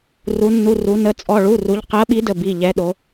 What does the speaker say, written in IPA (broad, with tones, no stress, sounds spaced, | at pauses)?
r u˩˧ nː u˩˧˩ r u˩˧ n ə˩˧˩ t͡sʼ ɔ˩˧˩ ɭ u˩˧˩ r u˩˧ ʎ q ɜ˨˥ ɓ i˨˥ d ə˩˧˩ b i˩˧˩ ʎ ɛ˨˥ ɗ o˩˧